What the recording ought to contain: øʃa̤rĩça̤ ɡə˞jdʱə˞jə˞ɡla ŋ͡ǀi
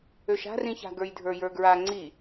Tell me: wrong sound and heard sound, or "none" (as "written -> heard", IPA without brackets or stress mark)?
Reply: l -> ɹ